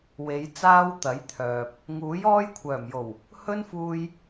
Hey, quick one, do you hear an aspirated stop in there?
yes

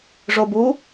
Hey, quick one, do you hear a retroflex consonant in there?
yes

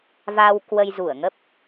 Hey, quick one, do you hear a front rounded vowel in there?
no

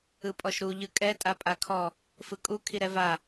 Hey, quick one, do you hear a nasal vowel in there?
no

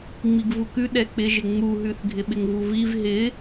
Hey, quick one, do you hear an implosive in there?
yes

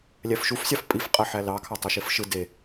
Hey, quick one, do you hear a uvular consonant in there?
yes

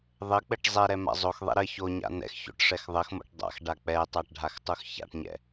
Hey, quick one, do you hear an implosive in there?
no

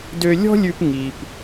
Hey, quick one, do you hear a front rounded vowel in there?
yes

